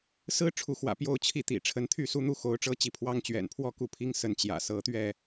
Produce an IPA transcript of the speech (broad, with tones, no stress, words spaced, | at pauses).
sɹ̩˦ ʈ͡ʂʰu˨˦xwä̰˨˩ pjo˥˨ʊ̯t͡ɕʰi˦t̪ḭ˨˩ ʈ͡ʂʰə˨˦nt̪ʰy˥˨su˦n̪u˥˨ xo˨˦ʊ̯ʈ͡ʂɤ˦t͡ɕi˨˦ pʰwɑ˦ŋ t͡ɕɥɛ̰˨˩npʰwɔ˥˨ku˥˨ pʰi˦ŋsə˨˦n t͡ɕjä̰˨˩sɤ˨˦t̪ɥɛ˥˨